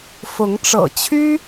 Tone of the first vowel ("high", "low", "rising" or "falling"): rising